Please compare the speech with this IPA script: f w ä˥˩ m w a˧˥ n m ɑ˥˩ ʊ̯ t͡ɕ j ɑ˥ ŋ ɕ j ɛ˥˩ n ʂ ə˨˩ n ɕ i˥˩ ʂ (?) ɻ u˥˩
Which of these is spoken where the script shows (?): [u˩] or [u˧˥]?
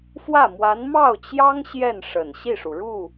u˩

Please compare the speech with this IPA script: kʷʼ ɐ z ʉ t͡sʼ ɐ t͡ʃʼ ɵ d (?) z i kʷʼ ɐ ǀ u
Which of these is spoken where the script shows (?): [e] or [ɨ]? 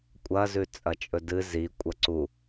ɨ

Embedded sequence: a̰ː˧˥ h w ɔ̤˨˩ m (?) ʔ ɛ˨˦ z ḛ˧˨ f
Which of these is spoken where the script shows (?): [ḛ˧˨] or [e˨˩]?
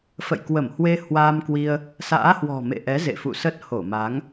ḛ˧˨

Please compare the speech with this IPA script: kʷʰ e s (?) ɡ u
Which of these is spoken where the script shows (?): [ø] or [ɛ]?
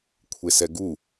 ɛ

